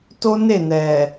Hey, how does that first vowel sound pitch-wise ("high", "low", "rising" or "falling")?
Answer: high